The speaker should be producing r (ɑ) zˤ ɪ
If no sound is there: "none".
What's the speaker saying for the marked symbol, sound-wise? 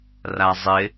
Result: a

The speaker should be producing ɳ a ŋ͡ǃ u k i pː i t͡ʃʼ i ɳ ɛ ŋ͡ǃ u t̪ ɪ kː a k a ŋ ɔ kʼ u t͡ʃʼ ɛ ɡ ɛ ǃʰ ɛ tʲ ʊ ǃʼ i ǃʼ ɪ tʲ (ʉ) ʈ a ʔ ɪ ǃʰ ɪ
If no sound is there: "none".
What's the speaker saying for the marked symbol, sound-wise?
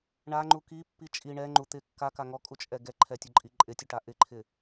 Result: ʊ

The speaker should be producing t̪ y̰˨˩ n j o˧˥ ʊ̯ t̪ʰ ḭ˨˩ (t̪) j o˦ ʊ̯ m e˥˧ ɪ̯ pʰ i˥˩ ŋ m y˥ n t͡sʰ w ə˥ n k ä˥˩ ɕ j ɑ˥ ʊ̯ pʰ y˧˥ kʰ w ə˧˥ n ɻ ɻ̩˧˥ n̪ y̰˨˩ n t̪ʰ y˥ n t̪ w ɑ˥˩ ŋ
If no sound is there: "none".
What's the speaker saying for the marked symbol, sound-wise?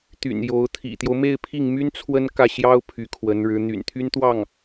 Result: t̪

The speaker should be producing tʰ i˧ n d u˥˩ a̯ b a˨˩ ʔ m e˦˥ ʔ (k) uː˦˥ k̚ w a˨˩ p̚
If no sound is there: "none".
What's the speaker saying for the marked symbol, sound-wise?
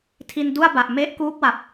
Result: k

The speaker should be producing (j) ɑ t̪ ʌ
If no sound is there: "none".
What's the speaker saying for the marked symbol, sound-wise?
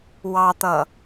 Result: w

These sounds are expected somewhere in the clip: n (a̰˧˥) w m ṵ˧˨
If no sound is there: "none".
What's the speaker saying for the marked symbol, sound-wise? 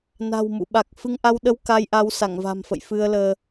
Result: a̤˨˩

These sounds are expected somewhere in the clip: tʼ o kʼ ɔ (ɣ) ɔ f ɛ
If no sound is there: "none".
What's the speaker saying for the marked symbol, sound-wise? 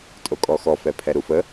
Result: x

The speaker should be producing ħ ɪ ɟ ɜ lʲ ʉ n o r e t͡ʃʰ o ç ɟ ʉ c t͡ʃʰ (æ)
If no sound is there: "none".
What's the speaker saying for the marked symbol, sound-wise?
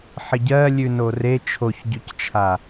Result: a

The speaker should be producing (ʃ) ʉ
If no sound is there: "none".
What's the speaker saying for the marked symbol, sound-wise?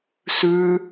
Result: s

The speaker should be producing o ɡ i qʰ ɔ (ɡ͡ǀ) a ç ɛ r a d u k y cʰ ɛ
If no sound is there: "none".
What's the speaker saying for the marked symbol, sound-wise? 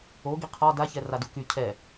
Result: d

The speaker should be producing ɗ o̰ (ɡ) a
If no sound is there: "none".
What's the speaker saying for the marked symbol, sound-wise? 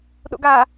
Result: ɡ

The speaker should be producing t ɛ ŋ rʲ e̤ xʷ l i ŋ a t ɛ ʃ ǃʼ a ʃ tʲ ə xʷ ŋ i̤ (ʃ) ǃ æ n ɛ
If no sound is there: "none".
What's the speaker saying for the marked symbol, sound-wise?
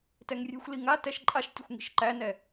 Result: ʃ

